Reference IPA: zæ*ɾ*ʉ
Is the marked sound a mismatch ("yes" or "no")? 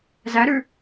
no